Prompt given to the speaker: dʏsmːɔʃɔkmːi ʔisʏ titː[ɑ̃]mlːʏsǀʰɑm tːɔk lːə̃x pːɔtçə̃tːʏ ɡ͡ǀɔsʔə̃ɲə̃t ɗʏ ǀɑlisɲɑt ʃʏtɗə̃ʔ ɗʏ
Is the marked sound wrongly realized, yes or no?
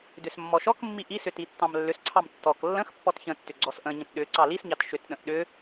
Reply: no